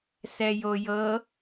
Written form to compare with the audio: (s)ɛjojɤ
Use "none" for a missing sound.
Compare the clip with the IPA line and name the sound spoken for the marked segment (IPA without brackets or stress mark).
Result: s